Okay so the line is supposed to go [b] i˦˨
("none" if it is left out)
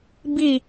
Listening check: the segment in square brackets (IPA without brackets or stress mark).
b